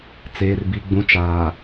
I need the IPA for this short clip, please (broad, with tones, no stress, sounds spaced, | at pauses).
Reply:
t͡s eː˨ r b i˨ ɡ͡b ũ˨ t͡ʃ aː˨